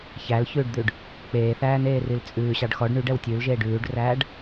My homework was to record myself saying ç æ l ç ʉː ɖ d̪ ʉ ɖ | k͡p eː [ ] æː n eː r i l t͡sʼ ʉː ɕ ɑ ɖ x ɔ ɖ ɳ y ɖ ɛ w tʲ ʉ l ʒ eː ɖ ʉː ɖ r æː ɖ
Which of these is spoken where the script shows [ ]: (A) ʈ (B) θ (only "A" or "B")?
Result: B